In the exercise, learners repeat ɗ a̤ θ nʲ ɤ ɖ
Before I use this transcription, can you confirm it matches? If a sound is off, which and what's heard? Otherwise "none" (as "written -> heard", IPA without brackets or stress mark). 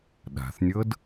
ɖ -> d